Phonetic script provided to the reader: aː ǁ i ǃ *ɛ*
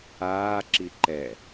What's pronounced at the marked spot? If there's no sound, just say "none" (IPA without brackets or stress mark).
ɛ